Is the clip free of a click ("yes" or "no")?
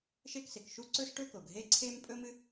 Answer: no